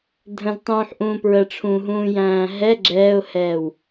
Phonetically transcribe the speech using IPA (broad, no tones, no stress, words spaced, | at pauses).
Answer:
dʱə̃ztˤũːħʔũː pɹəʈ͡ʂʰũːɦũːjæ̃ː ɦɛ ɡ͡ǁɛːʊ̯hɛːw